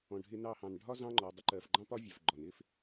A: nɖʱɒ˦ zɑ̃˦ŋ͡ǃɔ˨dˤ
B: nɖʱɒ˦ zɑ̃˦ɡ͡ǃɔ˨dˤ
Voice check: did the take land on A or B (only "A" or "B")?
A